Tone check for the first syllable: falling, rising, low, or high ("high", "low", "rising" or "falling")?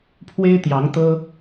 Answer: high